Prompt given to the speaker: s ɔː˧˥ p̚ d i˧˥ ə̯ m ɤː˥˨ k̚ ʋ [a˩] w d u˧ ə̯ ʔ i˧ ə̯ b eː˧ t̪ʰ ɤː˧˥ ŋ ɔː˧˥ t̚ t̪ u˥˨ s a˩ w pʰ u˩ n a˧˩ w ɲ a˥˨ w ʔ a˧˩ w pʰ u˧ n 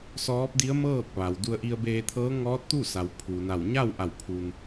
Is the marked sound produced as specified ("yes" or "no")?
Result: yes